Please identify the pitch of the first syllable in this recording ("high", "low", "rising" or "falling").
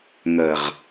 low